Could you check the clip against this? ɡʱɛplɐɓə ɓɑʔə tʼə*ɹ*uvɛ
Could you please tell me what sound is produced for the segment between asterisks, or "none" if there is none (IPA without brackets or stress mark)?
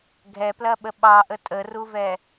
r